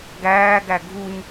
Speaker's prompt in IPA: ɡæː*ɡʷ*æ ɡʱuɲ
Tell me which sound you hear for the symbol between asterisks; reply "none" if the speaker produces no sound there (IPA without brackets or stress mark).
ɡ